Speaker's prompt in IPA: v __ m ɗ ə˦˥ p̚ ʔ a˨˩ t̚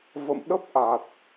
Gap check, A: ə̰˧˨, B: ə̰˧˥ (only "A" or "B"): A